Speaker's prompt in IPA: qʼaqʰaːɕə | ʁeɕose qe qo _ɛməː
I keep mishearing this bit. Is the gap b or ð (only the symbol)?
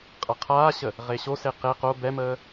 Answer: b